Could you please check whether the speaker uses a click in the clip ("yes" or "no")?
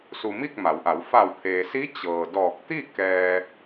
no